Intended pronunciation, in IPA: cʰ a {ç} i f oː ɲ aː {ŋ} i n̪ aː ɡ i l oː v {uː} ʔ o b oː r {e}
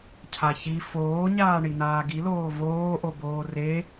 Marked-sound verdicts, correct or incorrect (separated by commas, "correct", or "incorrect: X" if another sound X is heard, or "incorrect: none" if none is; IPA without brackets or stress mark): correct, incorrect: ɳ, incorrect: oː, correct